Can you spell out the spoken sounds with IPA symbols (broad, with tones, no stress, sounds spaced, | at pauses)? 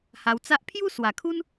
h a˧ w t͡s a˦ ʔ pʰ j u˦ s w a˨˩ kʰ u˦ n